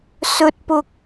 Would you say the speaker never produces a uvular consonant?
yes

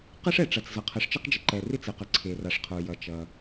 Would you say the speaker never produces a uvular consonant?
no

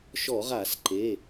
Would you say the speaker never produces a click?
no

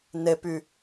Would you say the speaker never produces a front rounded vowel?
no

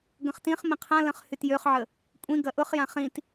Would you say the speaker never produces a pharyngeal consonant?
no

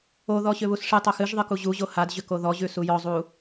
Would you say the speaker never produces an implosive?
yes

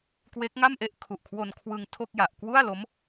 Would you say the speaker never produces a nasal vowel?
yes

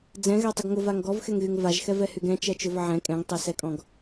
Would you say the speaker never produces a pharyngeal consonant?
no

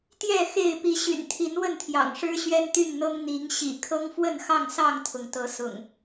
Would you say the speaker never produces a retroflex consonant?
no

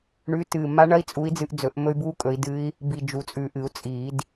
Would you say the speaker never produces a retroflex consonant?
no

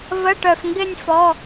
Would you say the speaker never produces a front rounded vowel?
no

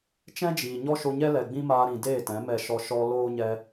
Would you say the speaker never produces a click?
yes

